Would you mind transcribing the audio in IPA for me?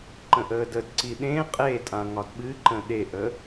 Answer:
ǃ ə̃ ʔ əː d ə d ǀ i ɗ ẽ qʼ e tʼ ã ŋ ɒ d ɓ ɨ ǃ ə̃ ɗ e ʔ ə

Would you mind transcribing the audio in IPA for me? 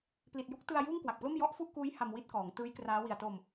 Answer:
p l i˨˩ t̚ j u˦˥ k̚ t ɯ˧ a̯ j uː˥˩ ŋ k w a˨˩ k̚ p l o˥˩ m j ɔ˦˥ ʔ f u˥˩ ʔ k uː˦˥ j h a˧ m w i˥˩ t̚ k ɔː˩˦ ŋ t ɯː˦˥ j k r aː˦˥ w i˨˩ a̯ t o˧ m

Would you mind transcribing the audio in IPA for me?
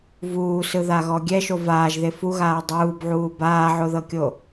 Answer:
v uː s ɯ ð a ɣ ɔ ɡʲ ɛ ʃ o v aː ʒ ð e f u ɣ aː dˤ uː b ʕ uː b aː ʕ o ð ɤ kʲ o

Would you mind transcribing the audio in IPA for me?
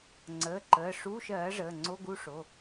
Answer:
ŋ͡ǀ əː˩˧˩ ǃ əː˩˧˩ ʂ uː˧˥˧ ʃ ɜː˩˥ ʐ əː˩˧˩ ŋ͡ǀ o˧˥˧ ɡ u˥˧ ʂ o˩˧˩

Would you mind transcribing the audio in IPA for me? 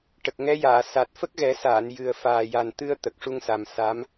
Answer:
ʈ ə˨˩ k̚ ŋ ɛ˧˥ j aː˨˩˨ s a˨˩ t̚ f ə˦˥ k̚ ɣ ɛ˨˩˦ s aː˨˩˨ n j ɨ˨˩ ə̯ f aː˨˩ j a˨˩ n t̪ ɨ˧ ə̯ t̪ ə˨˩ k̚ ʂ u˧ ŋ s a˨˩ m s a˧˥ m

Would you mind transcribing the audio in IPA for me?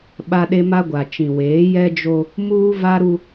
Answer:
ɓ a˦ ɗ e˦ m a˦ ɡʷ a˨ t͡ʃ ĩ˨ w eː˨˦ j ɛ˦ d͡ʒ o˦ | m uː˦ v a˦ ɾ u˦

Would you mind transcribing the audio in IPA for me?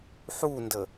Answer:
ħ u n d ə

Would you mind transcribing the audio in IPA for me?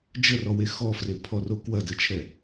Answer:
d͡ʒ ə r ɔ w e x ɔ f r e pʰ ɔ r o k w ɐ d ə t͡ʃʰ ɛ

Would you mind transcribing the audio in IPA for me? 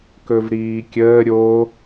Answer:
k ɵ v ɾ iː kʲ əː ɾʲ o

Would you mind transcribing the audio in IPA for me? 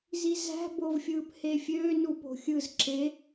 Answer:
z i z æ̤ b o v fʲ ɯː p h e fʲ øː n u p o̤ xʲ ɯ z ǁ e

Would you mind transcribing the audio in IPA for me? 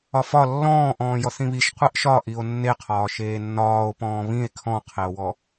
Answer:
ɒ f ɒ lː ɔ̃ː ʔ ɔ̃ː j ɔ θ ĩ β i ʃ qʷ e ʔ ʃ ɒ ʔ i o̯ nː e qʰ ɒː ʃ eː nː ɒː o̯ p ɔ̃ː β ĩ e̯ kʰ ɔ̃ qʰ e o̯ w ɔ

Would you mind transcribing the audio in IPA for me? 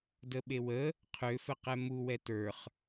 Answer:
d ə ɓ e w ə | qʰ ø f ə q ɛ m u w ɛ t ə˞ χ

